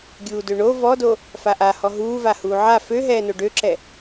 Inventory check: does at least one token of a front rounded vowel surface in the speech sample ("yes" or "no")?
yes